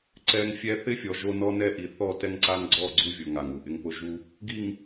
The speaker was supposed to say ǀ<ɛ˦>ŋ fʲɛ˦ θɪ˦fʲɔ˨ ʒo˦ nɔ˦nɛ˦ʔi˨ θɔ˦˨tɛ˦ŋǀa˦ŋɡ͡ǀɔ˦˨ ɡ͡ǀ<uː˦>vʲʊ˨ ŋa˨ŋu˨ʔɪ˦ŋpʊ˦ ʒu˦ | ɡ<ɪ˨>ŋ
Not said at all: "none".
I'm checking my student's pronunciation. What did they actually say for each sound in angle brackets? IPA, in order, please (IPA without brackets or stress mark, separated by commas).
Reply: ɛ˦, u˦, i˨